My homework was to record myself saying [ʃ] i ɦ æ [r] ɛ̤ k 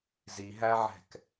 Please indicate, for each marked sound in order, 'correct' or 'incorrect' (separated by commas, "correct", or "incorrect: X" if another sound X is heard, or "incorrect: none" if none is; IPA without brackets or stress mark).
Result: incorrect: z, incorrect: ʕ